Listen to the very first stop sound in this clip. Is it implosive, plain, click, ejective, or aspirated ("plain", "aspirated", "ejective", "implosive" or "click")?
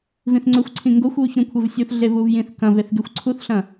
click